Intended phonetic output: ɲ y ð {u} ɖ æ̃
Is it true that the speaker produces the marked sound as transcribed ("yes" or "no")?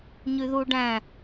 yes